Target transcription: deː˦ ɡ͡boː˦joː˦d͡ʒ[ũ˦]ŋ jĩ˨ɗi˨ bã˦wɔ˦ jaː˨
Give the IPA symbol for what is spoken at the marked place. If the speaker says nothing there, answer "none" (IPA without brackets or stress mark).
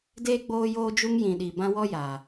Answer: u˦